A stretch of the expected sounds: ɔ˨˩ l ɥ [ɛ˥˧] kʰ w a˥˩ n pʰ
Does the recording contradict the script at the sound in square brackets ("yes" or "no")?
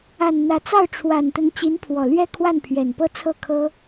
no